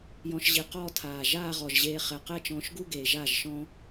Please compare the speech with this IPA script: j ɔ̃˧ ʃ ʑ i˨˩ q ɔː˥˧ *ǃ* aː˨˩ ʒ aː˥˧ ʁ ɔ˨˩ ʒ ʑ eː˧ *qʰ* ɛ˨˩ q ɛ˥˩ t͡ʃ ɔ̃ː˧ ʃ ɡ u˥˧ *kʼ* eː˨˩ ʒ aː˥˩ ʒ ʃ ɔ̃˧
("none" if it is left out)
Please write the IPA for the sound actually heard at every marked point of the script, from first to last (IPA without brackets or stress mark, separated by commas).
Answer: tʰ, χ, ɡ